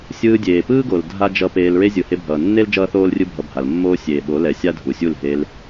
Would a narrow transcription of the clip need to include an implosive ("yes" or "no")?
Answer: yes